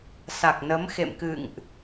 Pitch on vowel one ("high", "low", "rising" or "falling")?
low